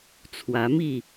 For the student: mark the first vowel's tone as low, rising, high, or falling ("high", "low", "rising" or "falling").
rising